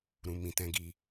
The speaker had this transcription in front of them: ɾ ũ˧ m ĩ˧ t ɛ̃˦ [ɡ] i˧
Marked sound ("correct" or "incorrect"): correct